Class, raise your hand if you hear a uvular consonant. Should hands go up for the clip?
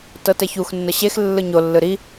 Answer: no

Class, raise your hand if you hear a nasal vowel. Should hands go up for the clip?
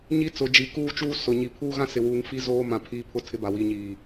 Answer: yes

